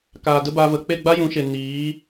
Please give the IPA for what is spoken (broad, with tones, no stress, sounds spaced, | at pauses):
k aː˨ d ə˦ b aː˧ v ə˨ k͡p e˦˨ ɡ͡b a˦ j ũ˨˦ ʃ e˨ n iː˨˦